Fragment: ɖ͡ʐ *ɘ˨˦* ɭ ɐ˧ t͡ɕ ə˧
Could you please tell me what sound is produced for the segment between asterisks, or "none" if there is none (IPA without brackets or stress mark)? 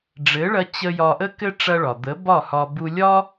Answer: ɘ˨˦